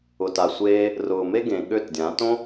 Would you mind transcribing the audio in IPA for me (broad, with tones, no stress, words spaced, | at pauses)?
ʊ˨ta˨ sʷeː˧ | rʊː˨me˦ ɡẽ˨ ɠø˦˨tdʲã˨˦ tõ˦